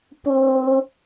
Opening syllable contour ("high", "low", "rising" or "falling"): low